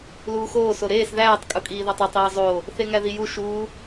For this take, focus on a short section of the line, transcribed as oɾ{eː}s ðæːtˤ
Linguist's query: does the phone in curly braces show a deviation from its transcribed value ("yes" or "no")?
no